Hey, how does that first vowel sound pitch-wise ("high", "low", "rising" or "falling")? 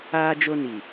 high